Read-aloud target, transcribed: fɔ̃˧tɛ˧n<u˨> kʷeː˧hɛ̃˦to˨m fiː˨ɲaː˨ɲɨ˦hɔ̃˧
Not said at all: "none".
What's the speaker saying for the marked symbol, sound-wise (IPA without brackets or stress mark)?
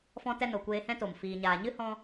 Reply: o˨